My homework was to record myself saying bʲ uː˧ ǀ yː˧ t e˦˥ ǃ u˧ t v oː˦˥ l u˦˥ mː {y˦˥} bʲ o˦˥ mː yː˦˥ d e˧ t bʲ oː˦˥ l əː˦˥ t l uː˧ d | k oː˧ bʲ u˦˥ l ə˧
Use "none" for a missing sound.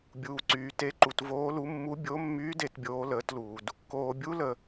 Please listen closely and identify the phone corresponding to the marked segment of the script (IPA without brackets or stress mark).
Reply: u˦˥